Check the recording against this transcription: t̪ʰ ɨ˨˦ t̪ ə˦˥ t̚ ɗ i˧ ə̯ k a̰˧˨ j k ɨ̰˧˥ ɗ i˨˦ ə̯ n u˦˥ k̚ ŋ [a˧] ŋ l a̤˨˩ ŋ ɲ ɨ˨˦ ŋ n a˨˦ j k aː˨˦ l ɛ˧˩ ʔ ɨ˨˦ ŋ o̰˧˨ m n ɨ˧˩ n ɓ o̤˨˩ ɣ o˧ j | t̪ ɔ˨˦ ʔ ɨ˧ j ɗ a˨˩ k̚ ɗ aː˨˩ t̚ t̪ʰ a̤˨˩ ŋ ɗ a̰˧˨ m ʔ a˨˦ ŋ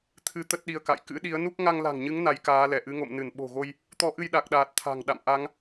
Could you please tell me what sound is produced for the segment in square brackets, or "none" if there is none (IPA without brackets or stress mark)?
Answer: a˧